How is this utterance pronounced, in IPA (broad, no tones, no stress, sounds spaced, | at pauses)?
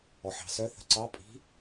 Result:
ɔ ħ ɑ̤ s œ θ ə̤ ǀ ɑ pʼ i̤